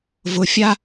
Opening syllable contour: low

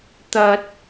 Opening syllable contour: high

